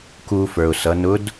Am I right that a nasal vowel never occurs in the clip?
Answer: yes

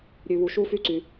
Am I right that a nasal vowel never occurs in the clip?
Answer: yes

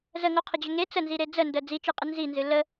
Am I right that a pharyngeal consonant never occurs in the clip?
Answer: yes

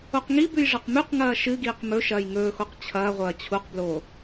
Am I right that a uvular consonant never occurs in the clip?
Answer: no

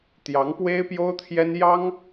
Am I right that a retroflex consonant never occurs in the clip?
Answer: yes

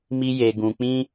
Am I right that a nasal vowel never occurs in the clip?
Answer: no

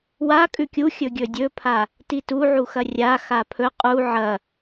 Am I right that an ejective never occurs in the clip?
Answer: no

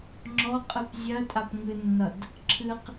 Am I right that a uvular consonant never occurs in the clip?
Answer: no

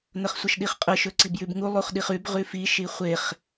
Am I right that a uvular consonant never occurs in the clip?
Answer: no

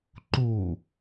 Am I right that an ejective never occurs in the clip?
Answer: yes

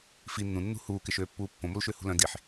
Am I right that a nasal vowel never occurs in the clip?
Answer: no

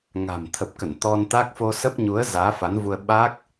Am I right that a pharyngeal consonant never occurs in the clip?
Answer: yes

